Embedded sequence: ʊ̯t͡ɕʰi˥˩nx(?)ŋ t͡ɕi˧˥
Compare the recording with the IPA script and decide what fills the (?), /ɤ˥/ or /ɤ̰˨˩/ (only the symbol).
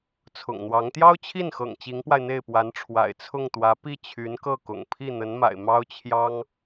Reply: ɤ̰˨˩